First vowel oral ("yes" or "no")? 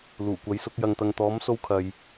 yes